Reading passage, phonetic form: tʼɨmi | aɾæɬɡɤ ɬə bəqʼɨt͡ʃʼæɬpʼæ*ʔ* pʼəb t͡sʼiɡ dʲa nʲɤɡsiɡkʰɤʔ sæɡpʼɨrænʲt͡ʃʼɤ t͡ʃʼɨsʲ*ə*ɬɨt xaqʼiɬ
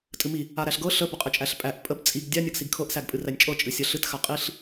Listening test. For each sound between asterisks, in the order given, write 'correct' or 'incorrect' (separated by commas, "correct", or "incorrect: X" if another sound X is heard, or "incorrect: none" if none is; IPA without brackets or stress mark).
correct, incorrect: ɐ